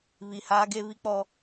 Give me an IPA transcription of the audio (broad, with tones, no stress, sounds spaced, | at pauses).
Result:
β i˨ h aː˦ ɡ e˦ β i˦ k͡p ɔ˦